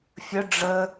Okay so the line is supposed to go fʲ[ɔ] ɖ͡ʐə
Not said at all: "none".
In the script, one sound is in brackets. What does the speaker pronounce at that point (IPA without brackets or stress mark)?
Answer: ə